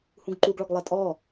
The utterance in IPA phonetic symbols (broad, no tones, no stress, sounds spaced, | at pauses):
h ũ ɡ ǃ u ɡ ɭ ɔ ɡ lˠ ɛ tʼ ɔ